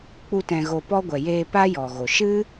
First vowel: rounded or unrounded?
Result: rounded